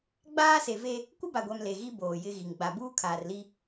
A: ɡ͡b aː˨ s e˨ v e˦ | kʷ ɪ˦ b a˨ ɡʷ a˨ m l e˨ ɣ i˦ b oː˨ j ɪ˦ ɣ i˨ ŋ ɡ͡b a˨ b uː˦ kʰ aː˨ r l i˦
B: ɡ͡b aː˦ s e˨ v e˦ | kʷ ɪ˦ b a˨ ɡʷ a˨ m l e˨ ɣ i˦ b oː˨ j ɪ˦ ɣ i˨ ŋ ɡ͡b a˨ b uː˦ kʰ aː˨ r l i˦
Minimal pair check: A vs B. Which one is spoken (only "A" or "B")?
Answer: B